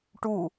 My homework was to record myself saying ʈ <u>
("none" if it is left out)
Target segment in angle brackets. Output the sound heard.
u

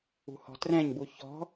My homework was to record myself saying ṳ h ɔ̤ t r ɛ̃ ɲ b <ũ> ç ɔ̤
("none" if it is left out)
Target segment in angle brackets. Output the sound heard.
u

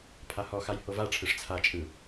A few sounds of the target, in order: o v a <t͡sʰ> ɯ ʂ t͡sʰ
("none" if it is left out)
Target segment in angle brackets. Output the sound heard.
ʈ͡ʂʰ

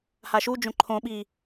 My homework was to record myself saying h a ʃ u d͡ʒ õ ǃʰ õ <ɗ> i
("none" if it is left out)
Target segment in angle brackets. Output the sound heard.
ɓ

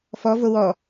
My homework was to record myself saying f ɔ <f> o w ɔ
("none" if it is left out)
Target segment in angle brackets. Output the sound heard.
v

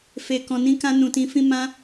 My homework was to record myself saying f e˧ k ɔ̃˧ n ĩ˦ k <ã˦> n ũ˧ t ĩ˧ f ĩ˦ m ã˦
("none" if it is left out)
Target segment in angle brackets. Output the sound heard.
ã˦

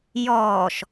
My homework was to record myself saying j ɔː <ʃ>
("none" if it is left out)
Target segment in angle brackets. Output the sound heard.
ʃ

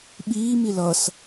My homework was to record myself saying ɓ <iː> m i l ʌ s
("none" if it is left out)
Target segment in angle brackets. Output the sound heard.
iː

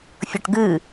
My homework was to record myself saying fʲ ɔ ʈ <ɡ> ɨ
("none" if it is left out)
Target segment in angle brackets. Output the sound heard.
ɡ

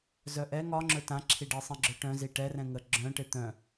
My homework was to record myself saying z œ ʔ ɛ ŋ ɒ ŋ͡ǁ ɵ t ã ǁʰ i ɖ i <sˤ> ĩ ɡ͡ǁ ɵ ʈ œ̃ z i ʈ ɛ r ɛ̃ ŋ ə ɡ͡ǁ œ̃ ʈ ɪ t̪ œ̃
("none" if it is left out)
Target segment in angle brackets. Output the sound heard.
sˤ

